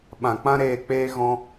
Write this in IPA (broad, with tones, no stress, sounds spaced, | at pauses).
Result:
ɓ ã˨ k͡p ã˦ ɾ eː˧ k͡p eː˦ ɣ ɔ̃˦